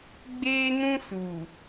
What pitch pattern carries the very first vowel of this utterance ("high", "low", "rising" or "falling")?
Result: high